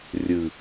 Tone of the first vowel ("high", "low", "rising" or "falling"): low